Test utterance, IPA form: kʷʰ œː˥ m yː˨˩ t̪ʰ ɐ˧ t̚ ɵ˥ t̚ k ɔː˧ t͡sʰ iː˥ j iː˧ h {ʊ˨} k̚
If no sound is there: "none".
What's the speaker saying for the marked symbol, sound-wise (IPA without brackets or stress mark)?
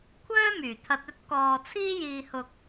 ʊ˧